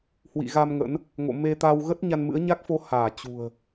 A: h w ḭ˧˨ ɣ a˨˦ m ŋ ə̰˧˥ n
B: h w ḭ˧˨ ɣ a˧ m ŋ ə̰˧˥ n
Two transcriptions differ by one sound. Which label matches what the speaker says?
B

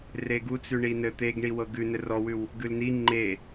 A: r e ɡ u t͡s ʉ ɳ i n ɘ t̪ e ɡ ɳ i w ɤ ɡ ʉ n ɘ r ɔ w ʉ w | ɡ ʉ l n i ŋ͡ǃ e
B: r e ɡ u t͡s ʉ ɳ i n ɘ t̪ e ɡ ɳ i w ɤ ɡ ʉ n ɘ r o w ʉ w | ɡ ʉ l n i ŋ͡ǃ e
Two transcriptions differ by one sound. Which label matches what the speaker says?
A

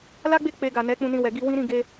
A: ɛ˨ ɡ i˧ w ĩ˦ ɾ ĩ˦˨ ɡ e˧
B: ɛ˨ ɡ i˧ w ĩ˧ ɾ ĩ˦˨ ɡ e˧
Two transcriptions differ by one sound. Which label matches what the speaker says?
A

